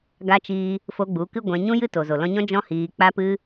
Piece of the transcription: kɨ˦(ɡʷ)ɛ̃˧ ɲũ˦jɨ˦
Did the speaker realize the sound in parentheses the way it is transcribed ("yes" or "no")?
yes